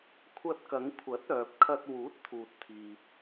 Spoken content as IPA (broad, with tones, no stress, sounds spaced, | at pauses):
kʷʰ ɐ˧ t̚ k ɐ˨˧ ŋ kʷʰ ɐ˨˥ t̚ œː˨ p̚ kʰ ɐ˧ t̚ w uː˨˥ t̚ t̪ʰ uː˨ t̚ t̪ʰ iː˨